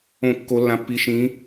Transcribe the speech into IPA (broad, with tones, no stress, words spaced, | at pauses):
õ˦˨ kːo˧˥lːã˧˥pːi˧˥ ʃĩ˧˥